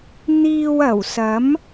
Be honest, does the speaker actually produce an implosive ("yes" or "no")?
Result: no